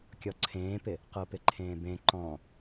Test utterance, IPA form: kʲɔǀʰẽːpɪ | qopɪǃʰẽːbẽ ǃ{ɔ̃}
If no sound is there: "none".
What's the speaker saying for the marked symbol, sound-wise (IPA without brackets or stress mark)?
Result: ɔ̃